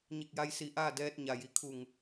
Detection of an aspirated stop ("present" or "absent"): present